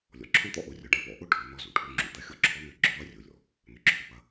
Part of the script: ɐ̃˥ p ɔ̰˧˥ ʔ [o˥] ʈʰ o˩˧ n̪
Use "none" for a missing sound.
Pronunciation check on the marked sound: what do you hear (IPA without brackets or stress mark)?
o˥